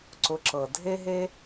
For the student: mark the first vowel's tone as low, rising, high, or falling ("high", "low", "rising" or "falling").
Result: low